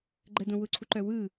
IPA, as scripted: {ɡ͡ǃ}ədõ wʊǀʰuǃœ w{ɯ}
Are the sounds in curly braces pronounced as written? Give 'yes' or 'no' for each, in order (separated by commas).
yes, yes